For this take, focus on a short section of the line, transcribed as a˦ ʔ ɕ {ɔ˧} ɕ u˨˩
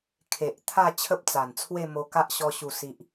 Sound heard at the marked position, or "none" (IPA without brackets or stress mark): ɔ˧